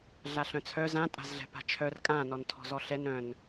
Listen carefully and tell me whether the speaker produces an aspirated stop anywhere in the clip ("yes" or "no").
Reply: yes